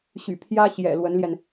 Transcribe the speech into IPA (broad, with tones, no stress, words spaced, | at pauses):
ɕy̰˨˩ pʰjä˥ɕjɛ̰˨˩ lwə˧˥nljɛ˧n